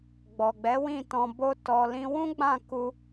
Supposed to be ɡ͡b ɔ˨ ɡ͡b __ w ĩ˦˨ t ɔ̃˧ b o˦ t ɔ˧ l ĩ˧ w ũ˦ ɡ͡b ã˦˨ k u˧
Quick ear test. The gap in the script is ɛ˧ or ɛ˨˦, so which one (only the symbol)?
ɛ˨˦